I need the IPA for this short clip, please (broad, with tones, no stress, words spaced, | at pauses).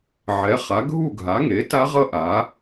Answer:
ʕɛ˩˥χa˩˥ ɡʱu˥˨ɡʱa˩˥ŋe˩˥ ta˦˥ʁʌ˦˥ ʔa˩˥